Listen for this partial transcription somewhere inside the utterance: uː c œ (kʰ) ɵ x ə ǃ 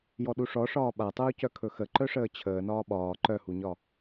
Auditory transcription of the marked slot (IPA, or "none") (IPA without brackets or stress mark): kʰ